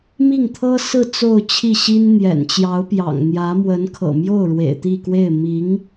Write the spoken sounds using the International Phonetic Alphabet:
mi˥˩ŋt̪ʰɤ˥sɹ̩˥˧ t͡so˥˧ʊ̯t͡ɕʰi˥˩ɕi˥n n̪jɛ̰˨˩nt͡ɕjɑ˧˥ʊ̯pjɑ̰˨˩ŋn̪jä˧˥ mwə˧˥nkʰɤ̰˨˩mjo˥˩ʊ̯ ɻwḛ˨˩ɪ̯t̪i˥˧kwe˥˩ɪ̯ mi˧˥ŋ

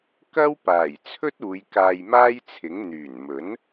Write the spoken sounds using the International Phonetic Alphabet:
kɐ˥wpaː˨˩j t͡sʰɵ˥t̚uː˨˧j kaː˧jmaː˥jt͡sʰɪ˨˥ŋ n̪yː˨˩nmɵ˨˥n

